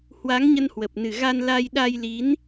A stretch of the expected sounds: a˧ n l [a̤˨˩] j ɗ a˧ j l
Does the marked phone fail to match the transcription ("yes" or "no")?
yes